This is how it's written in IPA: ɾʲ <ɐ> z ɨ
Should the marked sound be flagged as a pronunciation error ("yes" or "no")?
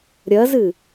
no